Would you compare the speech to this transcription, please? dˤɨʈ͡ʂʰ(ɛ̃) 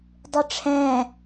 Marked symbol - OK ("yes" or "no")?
yes